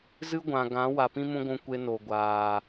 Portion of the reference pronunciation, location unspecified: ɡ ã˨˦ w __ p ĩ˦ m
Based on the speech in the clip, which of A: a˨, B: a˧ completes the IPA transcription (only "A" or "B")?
A